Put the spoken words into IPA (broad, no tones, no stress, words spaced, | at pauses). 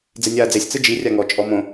d͡zenʲaːd͡zesʲ t͡sɯd͡ʒi rʲaŋɔ t͡ʃʼɔmõ